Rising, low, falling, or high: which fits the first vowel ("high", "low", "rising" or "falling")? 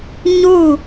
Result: falling